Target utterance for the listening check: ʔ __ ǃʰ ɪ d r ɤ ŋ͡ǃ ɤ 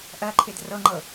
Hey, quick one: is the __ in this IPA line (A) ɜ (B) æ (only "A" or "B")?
A